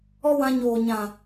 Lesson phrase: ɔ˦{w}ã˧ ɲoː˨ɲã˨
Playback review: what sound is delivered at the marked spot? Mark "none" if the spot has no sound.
w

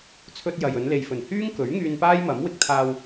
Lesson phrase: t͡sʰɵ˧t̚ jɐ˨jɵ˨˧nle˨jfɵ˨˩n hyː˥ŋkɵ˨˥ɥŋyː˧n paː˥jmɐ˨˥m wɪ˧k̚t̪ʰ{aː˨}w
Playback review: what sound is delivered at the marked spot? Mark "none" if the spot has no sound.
aː˧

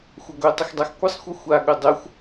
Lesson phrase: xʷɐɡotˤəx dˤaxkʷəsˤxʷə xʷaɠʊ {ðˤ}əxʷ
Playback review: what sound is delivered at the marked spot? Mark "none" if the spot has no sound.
dˤ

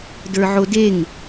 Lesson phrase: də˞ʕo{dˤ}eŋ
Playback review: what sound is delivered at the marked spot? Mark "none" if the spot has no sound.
d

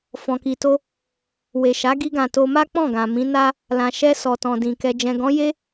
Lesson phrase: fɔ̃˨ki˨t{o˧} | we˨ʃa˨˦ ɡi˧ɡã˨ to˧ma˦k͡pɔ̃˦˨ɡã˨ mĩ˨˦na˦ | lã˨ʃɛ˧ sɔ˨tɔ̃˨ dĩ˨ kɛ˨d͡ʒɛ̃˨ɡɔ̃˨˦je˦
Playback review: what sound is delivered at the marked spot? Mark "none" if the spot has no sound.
o˧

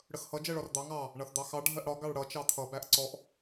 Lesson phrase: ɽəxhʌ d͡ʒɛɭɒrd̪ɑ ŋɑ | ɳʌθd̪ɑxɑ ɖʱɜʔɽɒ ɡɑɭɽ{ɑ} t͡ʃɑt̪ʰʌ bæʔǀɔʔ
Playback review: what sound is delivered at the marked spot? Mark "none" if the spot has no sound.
ʌ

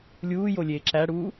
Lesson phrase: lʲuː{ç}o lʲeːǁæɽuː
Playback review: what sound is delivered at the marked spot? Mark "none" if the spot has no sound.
j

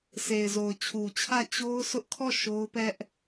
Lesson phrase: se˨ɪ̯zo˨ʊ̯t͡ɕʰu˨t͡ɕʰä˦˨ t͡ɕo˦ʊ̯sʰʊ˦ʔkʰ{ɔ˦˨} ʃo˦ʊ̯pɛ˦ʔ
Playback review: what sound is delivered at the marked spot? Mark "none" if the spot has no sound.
ɔ˦˨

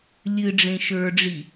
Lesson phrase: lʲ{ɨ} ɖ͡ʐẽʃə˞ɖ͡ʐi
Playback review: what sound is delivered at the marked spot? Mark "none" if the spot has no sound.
ɨ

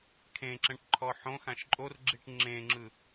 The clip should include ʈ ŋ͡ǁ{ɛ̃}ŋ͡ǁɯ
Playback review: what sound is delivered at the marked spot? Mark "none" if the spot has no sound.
ẽ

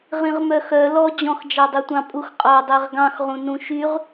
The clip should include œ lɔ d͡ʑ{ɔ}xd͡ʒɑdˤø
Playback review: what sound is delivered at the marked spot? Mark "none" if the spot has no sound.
ɔ̃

